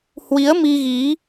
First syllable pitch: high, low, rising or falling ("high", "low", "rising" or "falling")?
rising